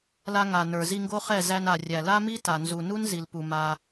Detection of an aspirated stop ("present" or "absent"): absent